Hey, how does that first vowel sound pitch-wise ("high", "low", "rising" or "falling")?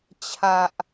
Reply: low